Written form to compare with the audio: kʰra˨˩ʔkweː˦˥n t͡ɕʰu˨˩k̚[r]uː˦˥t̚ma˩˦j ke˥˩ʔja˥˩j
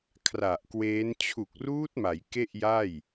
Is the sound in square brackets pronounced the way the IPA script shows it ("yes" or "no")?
yes